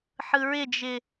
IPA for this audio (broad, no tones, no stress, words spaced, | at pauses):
ħɯɹɪd͡ʒɪ